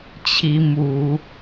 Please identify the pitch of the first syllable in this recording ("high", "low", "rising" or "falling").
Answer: rising